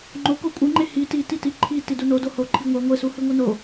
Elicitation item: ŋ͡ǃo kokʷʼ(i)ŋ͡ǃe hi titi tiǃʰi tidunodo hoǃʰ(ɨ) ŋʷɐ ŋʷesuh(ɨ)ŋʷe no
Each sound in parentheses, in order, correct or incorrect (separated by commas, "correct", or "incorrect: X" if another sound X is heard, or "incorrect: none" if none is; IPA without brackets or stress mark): incorrect: ɨ, incorrect: i, correct